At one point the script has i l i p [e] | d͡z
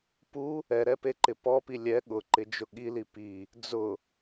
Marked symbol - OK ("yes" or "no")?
no